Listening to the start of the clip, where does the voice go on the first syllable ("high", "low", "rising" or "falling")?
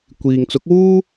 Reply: low